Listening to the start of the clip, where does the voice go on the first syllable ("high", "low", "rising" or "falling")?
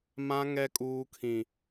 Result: high